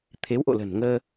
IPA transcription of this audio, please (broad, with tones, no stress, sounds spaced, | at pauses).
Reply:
t̪ʰ e˨˦ w ʔ o̰˧˨ l ə̤˨˩ n ŋ əː˧